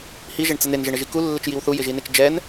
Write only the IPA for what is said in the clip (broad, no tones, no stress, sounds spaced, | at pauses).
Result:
h i ʒ ɛ ɳ t͡s ə n̪ e n ʒ ɛ ɳ ə ʒ i k u lː ɪ t͡ʃ j i w θ u j ɪ ʒ i n e t͡ʃ d͡ʒ ɛ n